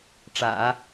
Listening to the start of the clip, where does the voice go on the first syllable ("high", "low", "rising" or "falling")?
low